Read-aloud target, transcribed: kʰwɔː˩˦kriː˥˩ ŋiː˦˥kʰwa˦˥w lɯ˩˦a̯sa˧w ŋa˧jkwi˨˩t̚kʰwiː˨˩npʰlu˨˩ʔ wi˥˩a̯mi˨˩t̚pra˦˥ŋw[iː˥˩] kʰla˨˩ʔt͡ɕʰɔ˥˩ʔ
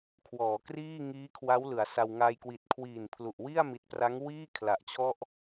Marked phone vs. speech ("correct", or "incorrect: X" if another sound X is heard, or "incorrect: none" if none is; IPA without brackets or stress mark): correct